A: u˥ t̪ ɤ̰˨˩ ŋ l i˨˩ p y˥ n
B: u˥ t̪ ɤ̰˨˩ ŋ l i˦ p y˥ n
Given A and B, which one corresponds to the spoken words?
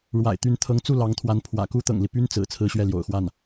B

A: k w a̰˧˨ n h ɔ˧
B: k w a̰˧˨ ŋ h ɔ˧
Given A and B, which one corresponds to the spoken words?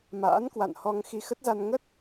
A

